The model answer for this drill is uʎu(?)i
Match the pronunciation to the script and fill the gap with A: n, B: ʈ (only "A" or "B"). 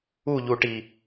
B